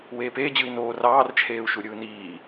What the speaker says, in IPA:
weːpeː d͡ʑɯi̯noː rɑːr t͡ʃʰeːu̯ʃuɾʲɯːniː

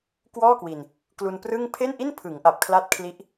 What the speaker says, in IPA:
kwɔː˥˩kwi˧n | klu˧nprɯ˥˩ŋ pʰe˥˩nʔi˥˩npʰɯ˩˦ŋʔa˨˩p̚ kʰla˦˥t̚kʰli˦˥ʔ

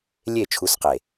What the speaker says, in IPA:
lʲe˦˨t͡ʃʰu˨˦s qe˨

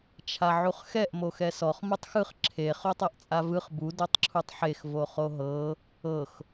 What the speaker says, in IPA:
t͡ʃʰaʕuχxɛʔ moxɛsɔχ mutˤxɯχ ǁʰe χotˤɤʔt͡sʼavɯχ bu dotˤǁʰutˤħex voχoɦɤ | ɤx

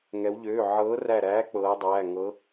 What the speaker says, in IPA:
ŋɛ˧˥wʎøː˧˥˧ ʕɤː˧˥ræ˦˨ɾæː˧˥ k͡pɤː˧˥dˤæː˧˥˧ ŋɤ˧˥

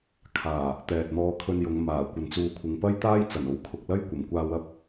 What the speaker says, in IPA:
kʰaː˨˩ | t̪ɛː˨t̚n̪ɔː˧kʰɵ˧njʊ˨˧ŋ maː˨˩kʷɐ˨˧nt͡suː˧kʷʰɪ˨ŋ pɐ˥jt̪aː˥jt͡sɐ˨˩n o˨˥wkʰʊ˨k̚lɐ˥j kʷɐ˨˩mkʷaː˧wɐ˥p̚

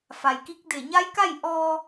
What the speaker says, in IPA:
fa˩jki˧˥k̚ de˧˩ɲa˧˥jka˥˨j ʔɔː˧

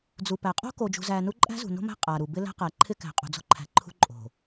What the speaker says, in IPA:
d͡zu˨pæ˨qʼo̤˦ ko˨d͡ʒṳ˨zæ˨ nu˦ ǃʼæ̤˦zṳ˨no̤˦mæ̤˦ qʼa˨ɾu˨ bɪ˦læ̤˦ qæ˨ǃʰɪ˦kæ̤˨ qʼṳ˨d͡zo̤˦ǃʰæ̤˨ ǃʰṳ˦ ǃʼo̤˨

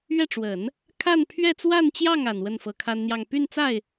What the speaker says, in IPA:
ɥɛ˥˩ʈ͡ʂwə˨˩˦n | kʰa˥˧npʰɥɛ˥˧t͡swa˥˧nt͡ɕjɑ˥˩ŋ a˨˩nwə˥˩n fɤ˧˥kʰa˥nn̪jɑ˥˧ŋ py˥˧nt͡sa˥˩ɪ̯

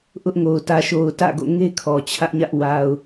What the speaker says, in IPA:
ʔʊ˦ʔŋo˨ʊ̯ tä˨ʃo˨ʊ̯ tä̰˦˨ɡo̰˦˨ ŋe˦ kʰɔ˨t͡ɕʰä˦ʔɲä˦ʔ wa˨ʊ̯

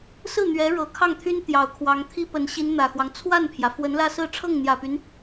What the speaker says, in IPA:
sɹ̩˥˩n̪ɥɛ˧˥ɻɤ˨˩ kʰɑ˥˩ŋt̪ʰy˥n t̪jɑ˨˩ʊ̯kʰwɑ˧˥ŋt̪ʰi˥pə˧˥n ɕi˧˥n n̪ä˨˩xwɑ˦ŋ t͡sʰwa˥˩npʰjä˩ fwə˧˥nlä˥˧sɹ̩˥˧ ʈ͡ʂʰɤ˥˩ŋn̪jä˨˩py˦n

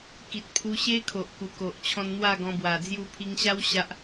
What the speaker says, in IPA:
ki˨t̚pʰu˧ɕe˦kʰo˨ʔ ku˨˩ko˨ʔt͡ɕʰɔ̃˧n n̪wa˥˧ɡɔ̃˧bwa˨˩ d͡zju˧pʰi˧ŋɕa˦w ɕa˦ʔ

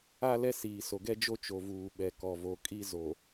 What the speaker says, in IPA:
a˦lɛ˦siː˨ so˨ɡɛ˦d͡ʒo˦ t͡ʃo˨vuː˨ɓɛ˨kɔ˨ vo˨kʼi˦zo˨

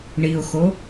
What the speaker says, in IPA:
ɳiʊ̯xo

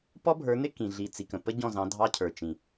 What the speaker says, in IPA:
pɔ˦bʱə˞˨˦nɪ˦ kĩ˨ɮi˨t͡si˨kə̃˨ pə˦ ɟɔ̃˦˨zɑ̃˨˦dʱɑ˦ cʰə˞˨t͡ʃĩ˨

